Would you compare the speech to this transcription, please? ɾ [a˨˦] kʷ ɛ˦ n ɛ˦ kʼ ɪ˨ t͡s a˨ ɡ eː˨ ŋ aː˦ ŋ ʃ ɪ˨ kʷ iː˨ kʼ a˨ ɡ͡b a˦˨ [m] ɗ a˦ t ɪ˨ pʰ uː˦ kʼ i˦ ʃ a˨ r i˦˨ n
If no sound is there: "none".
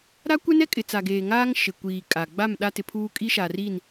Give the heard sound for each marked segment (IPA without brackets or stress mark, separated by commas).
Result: a˦, m